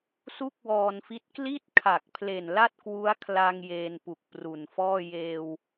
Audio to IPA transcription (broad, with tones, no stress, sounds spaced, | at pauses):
s u˥˩ k̚ w ɔː˧ n f i˦˥ t̚ k l i˥˩ t̚ kʰ a˨˩ k̚ pʰ l e˨˩ n l a˥˩ t̚ k w u˦˥ a̯ kʰ l a˧ ŋ j eː˧ n p u˨˩ k̚ p r u˨˩ n f ɔː˥˩ j eː˧ w